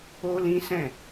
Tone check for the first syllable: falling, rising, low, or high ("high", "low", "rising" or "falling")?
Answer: high